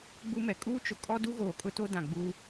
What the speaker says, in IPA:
ɡ͡b u˦ m ɛ˨ kʼ uː˦ t͡ʃ ʊ˨ kʼ ɔ˦ d u˦ ɣ oː˨ kʼ ʊ˦ t o˦ d ã˨ ɡ͡b uː˦

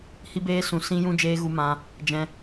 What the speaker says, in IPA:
h i˦ b eː˦ s ũ˧ s ĩ˦ j ũ˦ d͡ʒ eː˦ ɣ u˦ m ã˦ | d͡ʒ ɛ̃˧

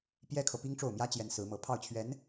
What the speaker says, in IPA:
p j ɛ˥ kʰ ɤ˨ p i˥ ŋ ʈ͡ʂ o˥˩ ʊ̯ m j ä˥ t͡ɕ j ɛ˧˥ n s ɹ̩˧˥ m ɤ˧˥ pʰ ɑ˥˩ ʊ̯ t͡ɕʰ ɥ ɛ˧˥ n

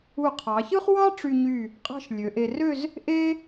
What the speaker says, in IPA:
u˧˩ qʰ ɑ˩˧ ç ɯ˥ χ w ɑ˥ ʈ͡ʂ y˧ ɲ y˧˩ | qʼ ɑ̤˧ ʃ lʲ ø˩˧ ʔ e˧ r ø˥˧ z | ʔ e˥

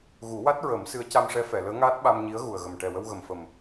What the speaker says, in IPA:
ɣ u˨˩˦ w a˦˥ t̚ ɹ ə˨˩˦ m s ɨ˧˥ ə̯ c a˧ m ʂ ɛ˧˥ f ɛ˨˩˨ l əː˧˥ ŋ aː˦˥ t̚ ɓ a˧ m ɲ i˧˥ ə̯ ɣ u˨˩ ə̯ ɣ ə˨˩ m ʈ ɛ˨˩ w ə˧ w ɣ ə˨˩ m f ə˨˩ m

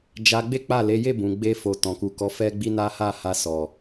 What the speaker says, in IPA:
d͡ʒ a˧ ɡ͡b e˦ k͡p a˦˨ l e˨˦ j e˦˨ b ũ˨ ɡ͡b e˧ f o˨ t ɔ̃˨ k u˨ k ɔ˨˦ f ɛ˦ ɡ͡b i˦ n a˦ h a˦˨ h a˧ s ɔ˨

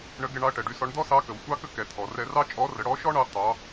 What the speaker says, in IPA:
ɳ ə˧˥ ɡ ɛ˧ ɳ ɑ˧˥ ɐ̯ ʈ ɛ˩ ɖ y˧ s ɔ˧˥ ɳ d̪ ɔ˥ s ɑ˧˥ k ə˩ w sʷ ɑ˧ k ə˧ k ɛ˩˧ t̪ʰ ɔ˩ r ɛ˧ r ɑ˥ t͡ʃʼ ɔ˧˥ r ə˩˧ ɽ ɔ˧˥ ʃ ɔ˥ ɳ ɑ˧ t̪ ɑ˩˧

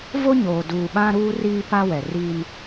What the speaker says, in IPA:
v o˦ ɲ oː˨ d uː˨ ɓ ã˦ ɾ uː˦ r iː˦ p a˦ w ɛ˨ r iː˦ n

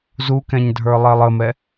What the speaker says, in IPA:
z u k ɛ̃ ɲ dʱ ə˞ lˠ ɛ lˠ ə m ɛ

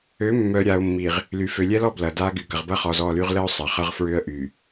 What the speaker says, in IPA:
ø˨˦ mː œ˨ ɾʲ a˨ ʊ̯ mː i˨ ʁ | l y˨ f ø˨ lʲ ɛ˦ l ɔ˦ b l ɐ˨ d a˦ ɡ y˨ ɡ ɐ˨ ʁ b ɐ˦ χ ɔ˨ z ɔ˦˨ l y˦ ʁ l ə˦ ʊ̯ sˤ ɐ˨ χ ɐ˦ ʁ f ɹ ʏ˦ ə̯ ʔ y˨

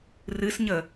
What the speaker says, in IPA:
r ɨ s ɲ ə

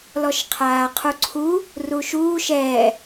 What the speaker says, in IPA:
l ɔ ʃ qʰ aː qʰ u ǀʰ u | r u ʃ uː ʃ ɛː

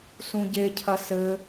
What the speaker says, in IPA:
s ũ ɟ e cʰ ɐ s ɘ

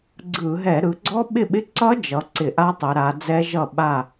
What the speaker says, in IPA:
ɡ͡ǀ ɯ˧˩˧ ɦ ɛ˧˩˧ ɾ ɯ˩˧ ɡ͡ǀ ɔ˦˥ ɓ ɪ˥˩ ɓ ɪ˦˥ ǀ ʌ˦˥ d͡ʒ ʌ˩˧ ǀ ɪ˧˩˧ ʔ a˦˥ tˤ ɛ˩˧ ɾ a˩˧ d͡z ɛ˦˥ ʒ ʌ˥˩ ɓ a˥˩

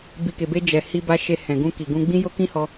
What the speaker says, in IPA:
b i˨ k e˨ b e˧ d͡ʒ ɛ˨ h i˧ b a˧ ʃ e˧ h ɛ̃˨ ɡ ũ˧ k i˨ ɡ ũ˧ ɡ͡b ĩ˦ j o˦ k ĩ˦ h ɔ˧

